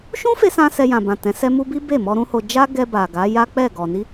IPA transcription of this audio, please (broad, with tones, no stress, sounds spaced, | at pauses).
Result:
ʃ ũ˦ f e˧ s ã˧ s ɛ˧ j ã˨ b ã˨ t ɛ̃˨˦ s ɛ˦ m u˦ b i˦ b e˦˨ m ɔ˧ ɾ ũ˦ h o˧ d͡ʒ a˦ ɡ ɛ˧ b a˨ ɡ a˨˦ j a˦ k͡p ɛ˦˨ ɡ ɔ˨ n i˧